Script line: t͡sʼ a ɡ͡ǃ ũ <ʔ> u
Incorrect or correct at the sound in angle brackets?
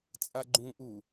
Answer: correct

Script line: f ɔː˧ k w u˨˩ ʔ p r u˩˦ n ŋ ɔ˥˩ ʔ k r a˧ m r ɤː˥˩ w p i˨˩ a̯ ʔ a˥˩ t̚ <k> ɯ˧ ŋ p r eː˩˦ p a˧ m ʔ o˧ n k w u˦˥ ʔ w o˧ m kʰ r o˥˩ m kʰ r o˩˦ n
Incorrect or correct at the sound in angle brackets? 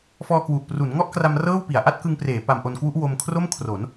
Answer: correct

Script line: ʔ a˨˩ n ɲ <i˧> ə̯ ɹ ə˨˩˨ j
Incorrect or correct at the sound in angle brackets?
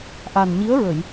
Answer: incorrect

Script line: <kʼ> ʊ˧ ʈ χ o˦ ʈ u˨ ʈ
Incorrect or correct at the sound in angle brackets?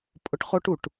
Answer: incorrect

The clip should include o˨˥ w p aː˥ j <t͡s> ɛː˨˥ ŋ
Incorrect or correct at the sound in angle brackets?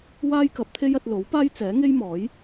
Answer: correct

